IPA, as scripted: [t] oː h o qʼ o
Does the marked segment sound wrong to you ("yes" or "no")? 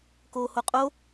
yes